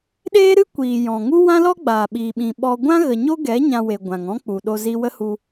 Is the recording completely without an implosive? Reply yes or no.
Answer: no